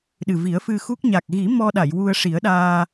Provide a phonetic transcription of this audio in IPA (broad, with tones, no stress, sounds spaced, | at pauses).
ɗ ɨ˨˩ v i˨˩˦ ə̯ f ɨ˧ x u˦˥ k̚ ɲ a˨˩ k̚ ɣ i˨˩˦ m ɔ˧ ɗ a˨˩˨ j w u˧ ə̯ ʂ i˨˩˦ ə̯ ɗ aː˧